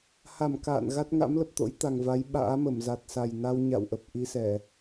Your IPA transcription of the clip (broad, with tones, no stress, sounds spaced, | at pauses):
h a˧˩ m k a̰ː˧˨ n ɣ a˦˥ t̚ ŋ a̰˧˥ m l ə˨˩ p̚ t̪ o̰˧˥ j t̪ a˨˩ ŋ v a˨˦ j ɓ a̰ː˧˥ m ə˧˩ m z a˨˩ t̚ s a˨˩ j n a˧ w ɲ a̰˧˨ w ʔ ə˨˩ p̚ ʔ i˧ s ɛ˧˩˨